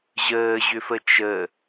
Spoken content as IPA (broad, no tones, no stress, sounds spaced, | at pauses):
ʑ əː ʑ ʏ f ə t͡ʃ ə